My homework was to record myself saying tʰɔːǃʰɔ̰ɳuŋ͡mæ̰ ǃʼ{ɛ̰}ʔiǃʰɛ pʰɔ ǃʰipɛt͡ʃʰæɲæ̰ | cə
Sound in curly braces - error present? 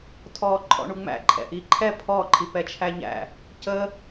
no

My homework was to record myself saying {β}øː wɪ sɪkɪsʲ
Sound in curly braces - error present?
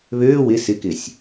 no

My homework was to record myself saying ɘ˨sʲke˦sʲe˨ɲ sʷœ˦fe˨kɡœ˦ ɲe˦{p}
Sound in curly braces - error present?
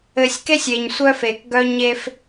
yes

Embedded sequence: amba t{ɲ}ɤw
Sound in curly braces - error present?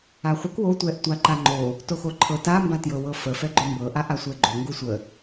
yes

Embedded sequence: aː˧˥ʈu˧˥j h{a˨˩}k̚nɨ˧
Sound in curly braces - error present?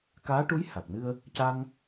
no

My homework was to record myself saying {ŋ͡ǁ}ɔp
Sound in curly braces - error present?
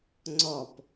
yes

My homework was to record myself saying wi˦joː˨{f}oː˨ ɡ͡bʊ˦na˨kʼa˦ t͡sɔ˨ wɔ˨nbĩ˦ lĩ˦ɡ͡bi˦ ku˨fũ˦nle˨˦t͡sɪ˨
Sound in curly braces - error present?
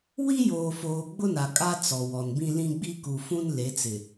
no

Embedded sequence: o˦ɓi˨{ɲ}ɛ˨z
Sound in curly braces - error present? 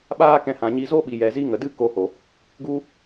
yes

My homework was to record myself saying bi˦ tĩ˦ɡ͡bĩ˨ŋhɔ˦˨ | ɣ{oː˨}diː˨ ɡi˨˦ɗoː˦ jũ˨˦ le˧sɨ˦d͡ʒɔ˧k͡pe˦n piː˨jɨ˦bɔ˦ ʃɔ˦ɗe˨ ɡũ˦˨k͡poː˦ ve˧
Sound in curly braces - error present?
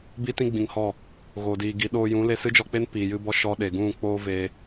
no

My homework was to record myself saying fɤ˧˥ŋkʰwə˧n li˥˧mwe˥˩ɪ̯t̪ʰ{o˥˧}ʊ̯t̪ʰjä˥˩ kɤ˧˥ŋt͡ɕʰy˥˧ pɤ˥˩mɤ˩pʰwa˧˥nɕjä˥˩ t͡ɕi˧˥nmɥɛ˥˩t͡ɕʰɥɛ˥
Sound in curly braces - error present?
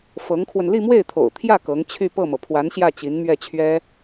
yes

